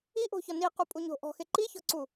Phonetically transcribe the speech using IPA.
iʔo̤çɔ niqupʼuɲo̤ ʔɔ̤xe ǃiçɔ̤ǀu

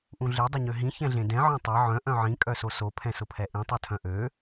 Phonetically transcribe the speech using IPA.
ʔũɮe dˤʊɲøɦĩ çɛ̃ɮẽdɛ̃ ʕœ̃tˤe ʕœ̃ ʔœ̃ʕĩ kʼœsoso pʰɛ̃sʊpʰɛʔĩ tˤotʰœ̃ʔø

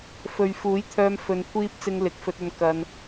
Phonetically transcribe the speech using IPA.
fɵ˨ɥfuː˨˥jt̪ʰœː˧m fɵ˧nkʷʰiː˥p̚ t͡sɪ˧ŋlɪ˨k̚fɵ˧t̚ɵ˧n kɐ˧n

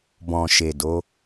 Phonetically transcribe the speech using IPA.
bɔ̃˨ ʃe˨do˨˦

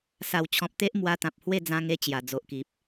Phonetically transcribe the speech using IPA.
sa˨˩wt͡ɕʰɔ̃˨p̚t̪e˦ʔ mwa˧t̪ã˨p̚ hwe˥˧d͡zã˧ŋe˧ t͡ɕja˨˩d͡zo˨ʔki˨p̚

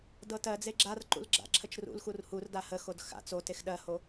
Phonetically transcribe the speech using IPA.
dɤtɜd͡ze ɡ͡ǁarǃṵl ɡ͡ǁa̰ǁʰət͡ʃrṵlxur hurda həxod xa̰ t͡sotex ɗɜho

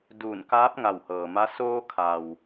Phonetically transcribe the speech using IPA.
duː˧˩nkaː˧˥p̚ ŋa˧˩whɤː˩ma˧˥ soː˧kʰa˩w

